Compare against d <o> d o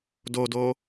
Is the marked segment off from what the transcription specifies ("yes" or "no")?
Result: no